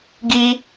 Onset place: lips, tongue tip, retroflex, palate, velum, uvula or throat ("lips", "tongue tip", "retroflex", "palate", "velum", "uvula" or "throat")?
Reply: velum